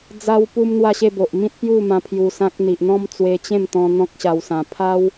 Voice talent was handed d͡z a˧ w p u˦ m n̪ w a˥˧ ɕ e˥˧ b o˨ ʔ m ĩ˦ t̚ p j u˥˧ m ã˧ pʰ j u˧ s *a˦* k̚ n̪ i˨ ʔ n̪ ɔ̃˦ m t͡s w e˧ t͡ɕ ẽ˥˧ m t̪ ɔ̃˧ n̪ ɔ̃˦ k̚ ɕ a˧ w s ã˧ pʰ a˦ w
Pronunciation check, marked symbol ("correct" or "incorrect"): incorrect